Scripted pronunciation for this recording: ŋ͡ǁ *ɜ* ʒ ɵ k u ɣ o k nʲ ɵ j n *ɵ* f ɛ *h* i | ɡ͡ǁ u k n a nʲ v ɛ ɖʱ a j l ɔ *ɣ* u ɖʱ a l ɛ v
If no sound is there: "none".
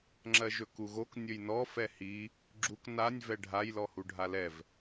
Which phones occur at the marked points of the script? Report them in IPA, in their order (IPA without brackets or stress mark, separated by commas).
ɜ, ɔ, h, h